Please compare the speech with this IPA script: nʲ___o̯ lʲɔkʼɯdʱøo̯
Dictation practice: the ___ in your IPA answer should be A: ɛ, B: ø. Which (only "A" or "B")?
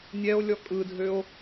A